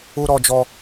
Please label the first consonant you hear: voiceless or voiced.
voiced